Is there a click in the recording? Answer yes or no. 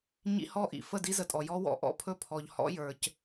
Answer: no